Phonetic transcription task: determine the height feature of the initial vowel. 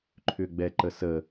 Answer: high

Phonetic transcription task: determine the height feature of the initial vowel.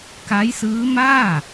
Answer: low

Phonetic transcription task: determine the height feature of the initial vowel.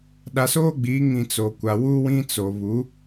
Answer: low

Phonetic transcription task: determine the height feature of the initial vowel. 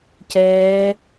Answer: mid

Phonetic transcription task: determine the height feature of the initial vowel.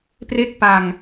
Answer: mid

